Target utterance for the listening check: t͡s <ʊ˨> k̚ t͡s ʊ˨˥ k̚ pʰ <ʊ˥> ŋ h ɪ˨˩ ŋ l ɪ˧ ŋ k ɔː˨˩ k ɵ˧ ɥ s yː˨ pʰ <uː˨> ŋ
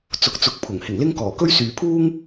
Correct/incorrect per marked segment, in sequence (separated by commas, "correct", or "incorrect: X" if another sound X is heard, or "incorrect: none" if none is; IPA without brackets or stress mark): incorrect: ʊ˨˥, incorrect: ʊ˨˩, incorrect: uː˥